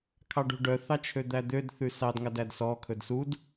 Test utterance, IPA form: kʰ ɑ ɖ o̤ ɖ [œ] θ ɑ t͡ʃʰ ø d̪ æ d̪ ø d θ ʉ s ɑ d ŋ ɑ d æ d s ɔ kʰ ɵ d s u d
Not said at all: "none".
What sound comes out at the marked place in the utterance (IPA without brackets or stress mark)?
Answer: œ